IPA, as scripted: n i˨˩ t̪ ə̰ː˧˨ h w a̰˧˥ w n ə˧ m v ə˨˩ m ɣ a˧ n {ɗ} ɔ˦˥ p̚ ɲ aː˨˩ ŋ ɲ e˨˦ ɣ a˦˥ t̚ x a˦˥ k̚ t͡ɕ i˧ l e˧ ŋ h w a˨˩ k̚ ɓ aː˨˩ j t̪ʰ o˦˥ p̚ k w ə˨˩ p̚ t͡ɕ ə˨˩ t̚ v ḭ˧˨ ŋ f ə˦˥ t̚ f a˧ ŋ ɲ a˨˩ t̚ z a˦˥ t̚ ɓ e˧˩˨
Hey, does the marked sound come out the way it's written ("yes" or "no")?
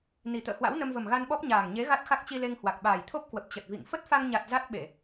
no